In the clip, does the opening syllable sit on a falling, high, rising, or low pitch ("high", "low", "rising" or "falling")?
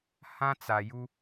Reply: high